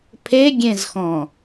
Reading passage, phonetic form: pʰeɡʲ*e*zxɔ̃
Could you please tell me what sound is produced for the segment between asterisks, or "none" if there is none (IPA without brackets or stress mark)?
ẽ